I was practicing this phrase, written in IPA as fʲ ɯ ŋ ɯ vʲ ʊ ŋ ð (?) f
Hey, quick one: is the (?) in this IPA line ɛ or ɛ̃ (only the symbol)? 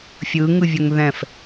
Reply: ɛ̃